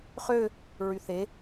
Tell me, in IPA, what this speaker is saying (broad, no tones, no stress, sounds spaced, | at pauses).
χ ø | ɹ y θ e